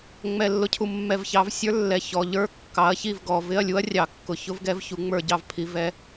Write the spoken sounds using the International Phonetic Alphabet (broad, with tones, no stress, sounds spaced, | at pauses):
ŋ͡m ɛ˨˩ lː ʊ˩˥ cʰ u˨˩ mː ɛ˧˩˧ v ç ɑ˩˥ v sʲ ə˞˧˥ lː ɛ˨˩ ç ɔ˨˩ ʎ ə˞˧˥ kː ɑ˩˥ ɐ̯ ç i˦˨ v ɡ ɔ˨˩ v ɪ˧˥˧ ɐ̯ lʲ u˧˥ ɐ̯ rʲ ɑ˧˩˧ kː ʊ˨˩ ç ʊ˧˥ v ɡ ɛ˩˥ v ç u˩˥ ŋ͡m ə˞˦˨ ɟ ɑ˦˨ v pʰ i˩˥ v ɛ˧˥